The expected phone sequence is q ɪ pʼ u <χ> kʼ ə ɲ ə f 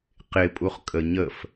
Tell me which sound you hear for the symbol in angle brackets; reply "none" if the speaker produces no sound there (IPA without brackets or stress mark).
χ